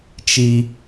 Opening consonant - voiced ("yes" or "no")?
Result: no